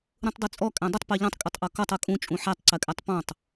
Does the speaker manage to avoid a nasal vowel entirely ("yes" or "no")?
no